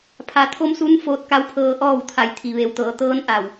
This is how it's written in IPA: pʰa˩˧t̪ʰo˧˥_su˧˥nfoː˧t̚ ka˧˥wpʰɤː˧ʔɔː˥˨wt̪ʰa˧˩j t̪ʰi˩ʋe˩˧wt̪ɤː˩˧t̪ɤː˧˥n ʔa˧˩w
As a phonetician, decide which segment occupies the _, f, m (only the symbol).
m